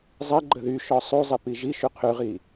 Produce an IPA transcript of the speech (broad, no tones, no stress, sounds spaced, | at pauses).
zˤ ɛ ɡ͡ǃ ə ð y ʃ ɔ sˤ y zˤ i p i ʒ i ʃ y qʰ y ʁ i